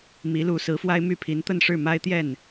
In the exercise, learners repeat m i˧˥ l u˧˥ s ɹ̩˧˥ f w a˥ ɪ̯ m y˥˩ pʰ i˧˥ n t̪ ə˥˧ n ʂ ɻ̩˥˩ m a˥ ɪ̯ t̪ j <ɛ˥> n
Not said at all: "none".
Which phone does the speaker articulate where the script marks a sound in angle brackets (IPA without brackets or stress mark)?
ɛ˥˩